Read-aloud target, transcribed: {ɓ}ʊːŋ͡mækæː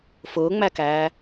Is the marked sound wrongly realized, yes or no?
yes